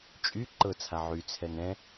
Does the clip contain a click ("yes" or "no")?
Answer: yes